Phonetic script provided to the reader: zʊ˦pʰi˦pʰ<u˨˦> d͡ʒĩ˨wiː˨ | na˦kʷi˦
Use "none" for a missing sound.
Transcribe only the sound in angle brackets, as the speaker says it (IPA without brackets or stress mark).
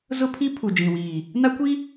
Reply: u˨